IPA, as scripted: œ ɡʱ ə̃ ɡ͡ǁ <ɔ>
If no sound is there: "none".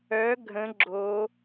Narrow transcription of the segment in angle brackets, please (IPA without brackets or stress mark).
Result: o